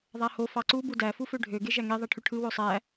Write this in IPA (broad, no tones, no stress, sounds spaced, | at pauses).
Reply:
ðˤ æ h o f ɑ ǀ u b u d æ f u f ø ɖʱ ø ɡ e ʒ æ ŋ e ðˤ æ ʈʰ y ʈʰ ɯ w o sˤ æ